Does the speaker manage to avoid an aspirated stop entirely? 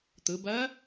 yes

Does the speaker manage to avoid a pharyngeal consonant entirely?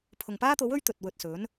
yes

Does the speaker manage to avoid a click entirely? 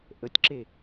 no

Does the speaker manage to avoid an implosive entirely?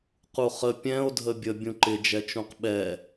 no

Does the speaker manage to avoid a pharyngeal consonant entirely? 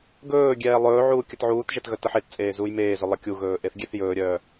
no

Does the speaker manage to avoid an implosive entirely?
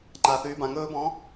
yes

